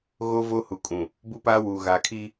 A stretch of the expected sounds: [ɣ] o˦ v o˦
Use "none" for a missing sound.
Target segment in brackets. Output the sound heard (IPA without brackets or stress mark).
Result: ɣ